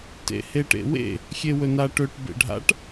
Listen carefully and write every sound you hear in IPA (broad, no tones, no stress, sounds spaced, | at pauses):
t ḛ h e ʈ ḛ w ḛ | xʲ e w ɵ n a ʈ ɵ ʈ b ḛ ɖʱ a̰ ʈ